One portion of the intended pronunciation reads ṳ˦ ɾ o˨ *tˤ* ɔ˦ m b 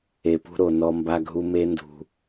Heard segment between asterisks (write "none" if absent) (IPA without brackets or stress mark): n